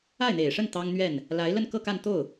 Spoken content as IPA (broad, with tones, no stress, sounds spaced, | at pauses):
a˥˩ ɪ̯ n̪ e˨˩ ɪ̯ ʂ ə˥˩ n t̪ ɑ˥ ŋ n̪ ɥ ɛ˥˩ n | l a˧˥ ɪ̯ l ə˥˧ n k ɤ˥˧ k a˥˧ n t̪ o˥˩ ʊ̯